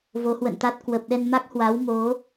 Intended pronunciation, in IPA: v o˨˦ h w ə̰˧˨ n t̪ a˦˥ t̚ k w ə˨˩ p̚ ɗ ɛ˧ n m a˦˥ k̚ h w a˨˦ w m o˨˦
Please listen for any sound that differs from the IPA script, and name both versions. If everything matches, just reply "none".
none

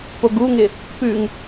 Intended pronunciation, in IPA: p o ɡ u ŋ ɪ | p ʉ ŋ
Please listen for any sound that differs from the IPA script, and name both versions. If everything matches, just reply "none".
none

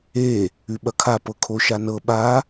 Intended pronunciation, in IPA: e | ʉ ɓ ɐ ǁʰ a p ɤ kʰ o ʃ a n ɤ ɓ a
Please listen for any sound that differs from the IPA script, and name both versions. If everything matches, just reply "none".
ǁʰ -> kʰ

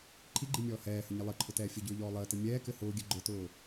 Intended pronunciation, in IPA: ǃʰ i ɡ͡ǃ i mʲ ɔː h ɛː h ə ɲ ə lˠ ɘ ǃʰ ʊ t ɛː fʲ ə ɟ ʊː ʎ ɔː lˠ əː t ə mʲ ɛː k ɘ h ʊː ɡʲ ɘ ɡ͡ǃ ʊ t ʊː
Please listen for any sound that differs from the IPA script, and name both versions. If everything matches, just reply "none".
none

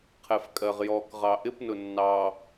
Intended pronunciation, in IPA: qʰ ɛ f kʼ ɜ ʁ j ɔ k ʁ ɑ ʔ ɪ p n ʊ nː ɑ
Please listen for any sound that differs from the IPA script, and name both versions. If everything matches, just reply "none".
none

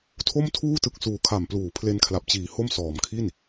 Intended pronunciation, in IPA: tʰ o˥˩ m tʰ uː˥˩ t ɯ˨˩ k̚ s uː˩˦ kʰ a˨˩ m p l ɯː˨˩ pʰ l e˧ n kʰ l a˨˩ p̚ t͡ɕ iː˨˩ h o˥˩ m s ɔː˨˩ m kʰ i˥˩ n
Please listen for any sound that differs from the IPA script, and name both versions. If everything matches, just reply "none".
ɯː˨˩ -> uː˨˩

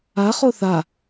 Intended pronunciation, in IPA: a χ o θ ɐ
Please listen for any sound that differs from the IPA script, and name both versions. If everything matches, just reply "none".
ɐ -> a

